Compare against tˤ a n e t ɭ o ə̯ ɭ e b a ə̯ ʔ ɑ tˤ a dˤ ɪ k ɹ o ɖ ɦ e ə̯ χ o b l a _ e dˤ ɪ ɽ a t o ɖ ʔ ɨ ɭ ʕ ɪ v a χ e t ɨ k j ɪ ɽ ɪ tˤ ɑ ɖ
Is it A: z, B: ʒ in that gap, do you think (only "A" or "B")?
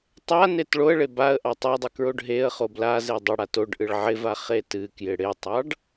A